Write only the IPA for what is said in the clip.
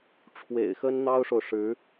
ʈ͡ʂʰwḛ˨˩ɪ̯xə˥n n̪ɑ˥ʊ̯ʂo˨ʊ̯ʂɻ̩˧˥

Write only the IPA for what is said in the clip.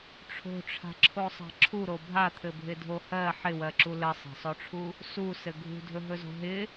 ʈ͡ʂʰo̤ʈ͡ʂʰa̤ǁʰosˤa̤ ǁʰuɾo bʱat̪ʰɘbʱɪdʱo hɜ ħɪwɜǁu lɘsˤa̤sˤoʈ͡ʂʰu | susɘ ɡʱṳdʱɵɦɵzo̤ ɦɪ

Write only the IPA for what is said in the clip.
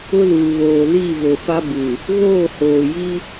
ʊ˦luː˨βoː˨ li˦˨ vo˨fa˦bu˨ | ɣoː˦˨hoː˨ji˦

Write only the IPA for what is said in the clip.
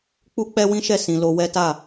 k͡pu˦k͡pɛ˦wĩ˦ʃɛ˦˨ sĩ˧lo˦ wɛ˦ta˦˨

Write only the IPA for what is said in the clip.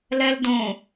lɛldõ

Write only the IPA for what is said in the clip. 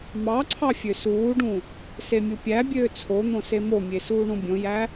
mɑǀʰɑ fʲøsuːɖũ | semʲupʲæbʲøː t͡sʰon̪õ semomʲe suːɳũbʲõjæ

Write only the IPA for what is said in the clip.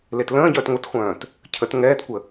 letlə̃ːɟœːt ŋʷɐtχʷœ̃ːt | cʰət ŋɛːtkʷə

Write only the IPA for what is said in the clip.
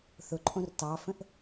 θʊǃʼõr tɑfə̃ʔ

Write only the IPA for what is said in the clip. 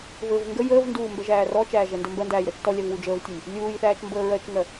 vɘv ŋɡə jəːvnduː mbɛʒæːrɔt͡ʃæː ʒɛndɘmbɜndæːj ɾɜt͡ʃtɔlʲav wud͡ʒəːvtʲəj | lʲuːjθæːt͡ʃ mbəːɹɜt͡ʃŋɜ

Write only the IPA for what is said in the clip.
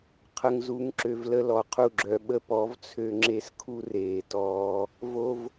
qʰə˨ŋzu˨˦ŋ ǁø˨v lə˦lɔ˧qʰu˦˨ ɡ͡ǁœ˨ɓə˧ pɔ˨˦vt͡sʰø˧ ŋ͡ǁe˧s kʰu˦reː˨tɔː˧ | vo˧v

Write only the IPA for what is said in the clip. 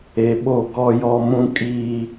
e˨ɓo˦˨ɡɔ˦jɔ˦ mũ˦kʼiː˦

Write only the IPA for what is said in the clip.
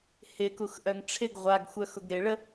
hɪkuxʔœŋ ʈ͡ʂʰɪɡ ʁʷaɡxʷœxʊɡ ɾɪ ɭə

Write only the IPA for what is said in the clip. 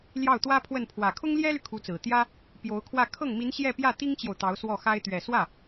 ljɑ˥˩ʊ̯t̪wä˥pʰwə˥˩n pʰwä˨˩kʰʊ˥ŋljɛ˥ly˨ kʰu˧˥t͡sɹ̩˨˩t̪jä˥ | pjo˧˥ʊ̯kʰwä˥˧ kʰɤ˥˩ŋ mi˧˥n ɕjɛ˥˧ pjä˥˩t̪i˥ŋt͡ɕjo˨ʊ̯ t̪ɑ˧˥ʊ̯swɔ˥˩xa˥ɪ̯ t̪ɥɛ˨˩ swä˥˩

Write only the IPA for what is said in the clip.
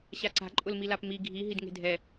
ɕaǀa̤ ǃʼʊlmilapmi ɡʱi ɦidŋe̤dʱɛ

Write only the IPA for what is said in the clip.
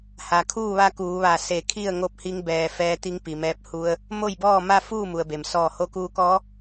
ha˩kʰuː˥˨ʋa˧˥ kuː˩˧ʋa˧˩ se˧˩kʰi˥˨ə̯ ŋo˥˨p̚hi˧˥ŋ bɛː˩ fɛː˧t̪i˧˥ŋpi˩mɛː˧p̚ hu˧ə̯ | mo˥˨jbɔː˥˨ma˥˨ fuː˥˨mu˩ə̯be˩m sɔː˧˩ho˧kuː˧kɔː˧˥

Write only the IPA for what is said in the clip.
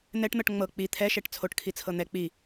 n̪ɛʈn̪ɤʈ ŋ͡mɤ k͡pi t̪ʰɛʃɛʈ t͡sʰoʈkʰit͡sʰɤ n̪ɛ k͡pi

